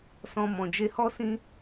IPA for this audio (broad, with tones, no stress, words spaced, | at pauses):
sɔ̃˧ mɔ̃˨d͡ʒe˧hɔ˦ sĩ˦